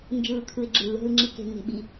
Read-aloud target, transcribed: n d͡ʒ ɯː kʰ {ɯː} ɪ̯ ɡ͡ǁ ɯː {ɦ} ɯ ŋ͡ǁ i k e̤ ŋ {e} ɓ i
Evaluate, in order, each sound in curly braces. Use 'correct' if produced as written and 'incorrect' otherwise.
incorrect: ɯ, correct, incorrect: e̤

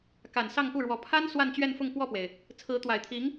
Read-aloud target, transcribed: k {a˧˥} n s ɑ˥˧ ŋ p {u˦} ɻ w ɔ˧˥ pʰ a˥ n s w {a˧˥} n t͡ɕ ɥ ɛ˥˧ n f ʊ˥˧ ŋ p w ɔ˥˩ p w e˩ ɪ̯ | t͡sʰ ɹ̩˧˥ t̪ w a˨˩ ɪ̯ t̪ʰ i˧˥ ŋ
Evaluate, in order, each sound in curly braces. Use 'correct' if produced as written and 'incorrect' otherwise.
incorrect: a˨˩, incorrect: u˥˩, incorrect: a˥˧

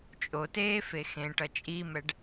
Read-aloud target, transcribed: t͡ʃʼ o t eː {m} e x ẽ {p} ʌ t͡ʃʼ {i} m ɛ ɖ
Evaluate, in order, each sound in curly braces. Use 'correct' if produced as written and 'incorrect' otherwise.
incorrect: f, incorrect: ʈ, correct

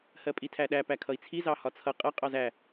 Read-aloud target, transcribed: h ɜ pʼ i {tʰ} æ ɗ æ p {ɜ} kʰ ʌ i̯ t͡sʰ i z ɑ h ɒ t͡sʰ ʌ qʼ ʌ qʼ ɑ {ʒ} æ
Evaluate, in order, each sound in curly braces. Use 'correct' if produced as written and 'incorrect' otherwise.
correct, incorrect: æ, incorrect: z

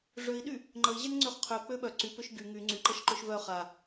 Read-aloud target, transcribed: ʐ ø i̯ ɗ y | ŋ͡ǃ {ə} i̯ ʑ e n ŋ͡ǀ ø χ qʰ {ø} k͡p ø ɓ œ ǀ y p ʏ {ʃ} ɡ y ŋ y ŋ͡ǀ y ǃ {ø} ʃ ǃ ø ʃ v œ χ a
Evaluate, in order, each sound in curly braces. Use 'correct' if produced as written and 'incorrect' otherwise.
correct, correct, correct, incorrect: ə

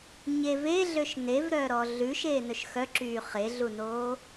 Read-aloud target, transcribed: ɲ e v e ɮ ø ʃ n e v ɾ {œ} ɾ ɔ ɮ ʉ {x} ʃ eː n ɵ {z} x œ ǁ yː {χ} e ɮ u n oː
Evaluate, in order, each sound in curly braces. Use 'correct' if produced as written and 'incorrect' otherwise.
incorrect: œː, incorrect: none, incorrect: ʃ, correct

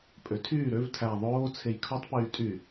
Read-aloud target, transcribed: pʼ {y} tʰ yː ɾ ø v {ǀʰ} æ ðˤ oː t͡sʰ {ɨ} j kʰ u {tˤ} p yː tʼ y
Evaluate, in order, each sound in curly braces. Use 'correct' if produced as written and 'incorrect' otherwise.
incorrect: ø, incorrect: tʰ, incorrect: e, correct

